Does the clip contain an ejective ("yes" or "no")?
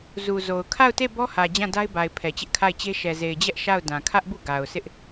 no